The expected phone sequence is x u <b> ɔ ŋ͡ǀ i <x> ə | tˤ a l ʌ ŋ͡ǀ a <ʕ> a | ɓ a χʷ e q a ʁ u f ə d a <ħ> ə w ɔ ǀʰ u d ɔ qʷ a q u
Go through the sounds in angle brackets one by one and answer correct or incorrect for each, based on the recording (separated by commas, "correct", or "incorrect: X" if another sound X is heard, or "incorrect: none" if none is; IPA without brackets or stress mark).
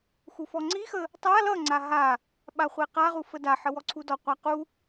incorrect: f, correct, incorrect: ɦ, correct